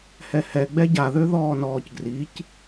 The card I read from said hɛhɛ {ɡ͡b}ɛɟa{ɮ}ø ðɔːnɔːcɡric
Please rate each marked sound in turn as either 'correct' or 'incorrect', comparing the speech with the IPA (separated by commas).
correct, incorrect